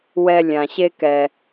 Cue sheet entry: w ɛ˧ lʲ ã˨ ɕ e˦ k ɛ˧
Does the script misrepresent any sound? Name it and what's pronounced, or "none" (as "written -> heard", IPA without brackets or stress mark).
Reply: none